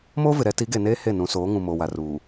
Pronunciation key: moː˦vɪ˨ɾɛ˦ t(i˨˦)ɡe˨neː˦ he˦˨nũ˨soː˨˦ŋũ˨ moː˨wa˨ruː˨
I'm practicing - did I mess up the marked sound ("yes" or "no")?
no